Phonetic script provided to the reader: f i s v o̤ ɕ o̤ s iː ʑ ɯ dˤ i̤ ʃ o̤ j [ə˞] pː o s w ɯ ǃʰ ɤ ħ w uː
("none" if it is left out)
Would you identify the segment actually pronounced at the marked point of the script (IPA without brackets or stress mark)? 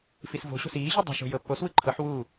ɤ